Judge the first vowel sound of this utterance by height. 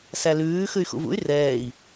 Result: low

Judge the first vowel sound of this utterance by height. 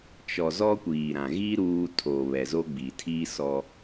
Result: mid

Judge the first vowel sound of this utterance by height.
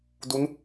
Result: high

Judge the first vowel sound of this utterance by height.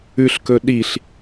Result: high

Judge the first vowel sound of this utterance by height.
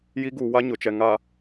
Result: high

